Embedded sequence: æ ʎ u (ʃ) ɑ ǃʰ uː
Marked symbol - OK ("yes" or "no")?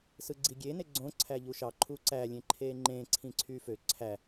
yes